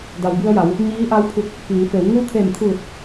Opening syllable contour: low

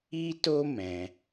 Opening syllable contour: high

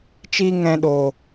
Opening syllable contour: high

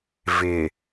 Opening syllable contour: low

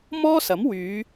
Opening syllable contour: high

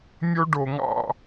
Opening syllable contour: high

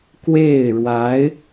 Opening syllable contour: falling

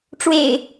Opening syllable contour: low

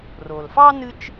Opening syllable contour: low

